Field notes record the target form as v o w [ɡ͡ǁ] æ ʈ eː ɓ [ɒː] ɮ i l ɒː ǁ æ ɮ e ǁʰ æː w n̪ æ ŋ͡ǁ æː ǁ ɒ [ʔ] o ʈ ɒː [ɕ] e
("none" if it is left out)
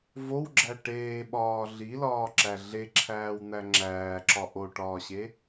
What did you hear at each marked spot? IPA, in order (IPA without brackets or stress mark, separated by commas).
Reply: ɡ͡ǁ, ɒː, ʔ, ɕ